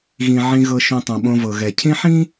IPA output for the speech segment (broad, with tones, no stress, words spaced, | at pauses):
ɣĩ˩ʕĩ˨ɣɤ˨ ʃõ˨tˤõ˩ɓõ˨vɤ˩ ɣɛ˩cʰĩ˦ħĩ˥